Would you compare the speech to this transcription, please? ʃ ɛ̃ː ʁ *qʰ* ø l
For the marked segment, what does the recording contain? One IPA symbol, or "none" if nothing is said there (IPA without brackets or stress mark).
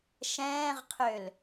qʰ